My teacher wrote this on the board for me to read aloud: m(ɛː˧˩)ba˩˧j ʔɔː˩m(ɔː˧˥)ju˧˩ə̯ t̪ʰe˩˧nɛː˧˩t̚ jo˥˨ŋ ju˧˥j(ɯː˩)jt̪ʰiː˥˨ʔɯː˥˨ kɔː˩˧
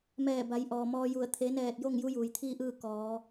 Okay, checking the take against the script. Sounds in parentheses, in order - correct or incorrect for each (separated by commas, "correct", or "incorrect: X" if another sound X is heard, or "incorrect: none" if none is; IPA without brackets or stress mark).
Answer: correct, incorrect: ɔː˧, incorrect: uː˩